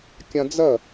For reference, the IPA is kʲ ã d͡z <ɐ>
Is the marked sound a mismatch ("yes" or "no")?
no